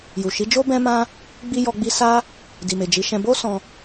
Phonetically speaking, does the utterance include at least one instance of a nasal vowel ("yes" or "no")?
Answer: yes